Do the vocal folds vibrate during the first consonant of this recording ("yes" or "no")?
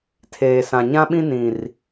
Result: no